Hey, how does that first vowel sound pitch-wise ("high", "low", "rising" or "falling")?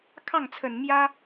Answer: falling